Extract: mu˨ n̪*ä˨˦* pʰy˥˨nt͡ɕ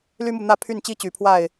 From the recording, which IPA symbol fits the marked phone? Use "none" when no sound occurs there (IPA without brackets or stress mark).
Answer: ä˥˨